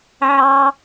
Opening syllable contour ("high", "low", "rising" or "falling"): high